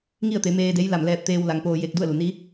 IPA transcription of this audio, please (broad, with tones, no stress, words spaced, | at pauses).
ŋi˥˨ə̯t̪e˩˧ meː˧de˧˥j la˧˩mlɛː˧p̚t̪eː˧wla˩˧ŋ poː˧ je˧k̚ du˥˨ə̯lu˩ni˧˥